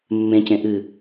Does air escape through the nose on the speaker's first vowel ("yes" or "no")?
yes